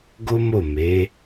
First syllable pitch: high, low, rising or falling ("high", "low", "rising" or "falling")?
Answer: high